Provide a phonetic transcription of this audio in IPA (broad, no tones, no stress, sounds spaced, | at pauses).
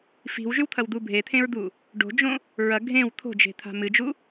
f i̤ w ʒ ʉ w t̪ʰ ɐ w d̪ u bʱ e t̪ʰ ẽ ɹ d̪ u | ɖ o̤ d͡ʒ õ | ɹ ɐ ɡʱ ẽ w t̪ʰ o̤ d͡ʒ e̤ t̪ʰ a̤ m ɨ d͡ʒ u